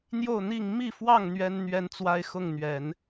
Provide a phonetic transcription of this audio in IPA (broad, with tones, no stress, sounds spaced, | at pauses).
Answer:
n̪ j o˥˨ ʊ̯ n̪ i˥˨ ŋ m i˥˨ f w ɑ˥˨ ŋ n̪ ɥ ɛ˦ n n̪ ɥ ɛ˦ n t͡s w a˦ ɪ̯ x ʊ˥˨ ŋ n̪ ɥ ɛ˨˦ n